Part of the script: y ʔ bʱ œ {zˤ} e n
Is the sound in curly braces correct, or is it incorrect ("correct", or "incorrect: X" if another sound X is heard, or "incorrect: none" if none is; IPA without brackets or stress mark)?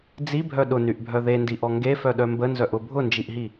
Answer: incorrect: ð